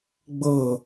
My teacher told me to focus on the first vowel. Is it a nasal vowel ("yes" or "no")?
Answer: no